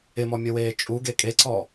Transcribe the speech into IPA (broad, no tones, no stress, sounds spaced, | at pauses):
ɪ m ɔ mʲ ɔ w eː t͡ʃʼ u ɡ e kʼ e ǀ ɔ